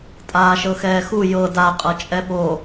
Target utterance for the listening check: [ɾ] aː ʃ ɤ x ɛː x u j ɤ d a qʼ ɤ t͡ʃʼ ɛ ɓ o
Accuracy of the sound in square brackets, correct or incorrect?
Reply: incorrect: tʼ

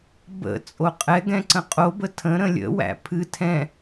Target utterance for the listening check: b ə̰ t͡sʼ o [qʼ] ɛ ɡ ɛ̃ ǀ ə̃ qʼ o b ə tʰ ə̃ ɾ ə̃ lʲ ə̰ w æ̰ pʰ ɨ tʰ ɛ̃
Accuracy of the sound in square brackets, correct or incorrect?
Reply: correct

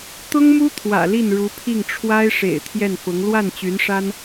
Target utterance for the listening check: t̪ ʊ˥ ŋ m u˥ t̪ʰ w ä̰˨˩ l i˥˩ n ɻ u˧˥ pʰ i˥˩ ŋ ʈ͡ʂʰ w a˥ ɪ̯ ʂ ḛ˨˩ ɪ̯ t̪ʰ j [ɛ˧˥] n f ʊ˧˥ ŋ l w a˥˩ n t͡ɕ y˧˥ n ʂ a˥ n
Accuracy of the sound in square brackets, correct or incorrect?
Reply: incorrect: ɛ˥˩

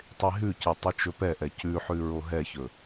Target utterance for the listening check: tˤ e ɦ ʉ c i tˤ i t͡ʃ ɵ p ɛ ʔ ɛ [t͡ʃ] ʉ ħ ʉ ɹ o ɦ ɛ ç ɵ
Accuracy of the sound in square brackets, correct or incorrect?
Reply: incorrect: c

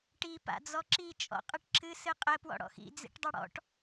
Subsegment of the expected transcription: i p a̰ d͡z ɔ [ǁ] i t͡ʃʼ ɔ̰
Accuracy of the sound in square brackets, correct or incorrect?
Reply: correct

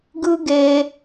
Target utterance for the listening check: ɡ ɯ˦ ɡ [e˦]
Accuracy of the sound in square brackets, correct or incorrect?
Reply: correct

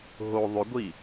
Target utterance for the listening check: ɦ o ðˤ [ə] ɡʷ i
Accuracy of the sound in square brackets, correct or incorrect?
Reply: incorrect: ʏ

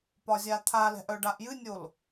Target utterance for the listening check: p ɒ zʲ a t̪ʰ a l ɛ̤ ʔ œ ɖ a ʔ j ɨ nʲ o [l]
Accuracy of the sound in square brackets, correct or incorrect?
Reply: correct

